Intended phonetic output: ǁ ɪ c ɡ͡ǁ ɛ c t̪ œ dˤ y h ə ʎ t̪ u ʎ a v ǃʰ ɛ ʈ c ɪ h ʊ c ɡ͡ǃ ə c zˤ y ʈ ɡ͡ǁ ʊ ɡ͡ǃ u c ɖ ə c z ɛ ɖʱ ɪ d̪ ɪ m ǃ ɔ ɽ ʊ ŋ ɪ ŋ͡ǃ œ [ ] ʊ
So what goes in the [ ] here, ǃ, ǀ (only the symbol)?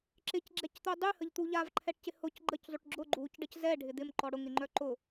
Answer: ǃ